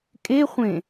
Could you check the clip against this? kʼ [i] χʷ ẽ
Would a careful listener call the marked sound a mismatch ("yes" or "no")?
yes